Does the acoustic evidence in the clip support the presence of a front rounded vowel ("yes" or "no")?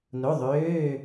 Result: yes